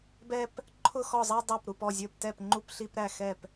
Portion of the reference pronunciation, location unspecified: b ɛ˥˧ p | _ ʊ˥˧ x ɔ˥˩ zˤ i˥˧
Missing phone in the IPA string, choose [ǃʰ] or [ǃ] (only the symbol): ǃʰ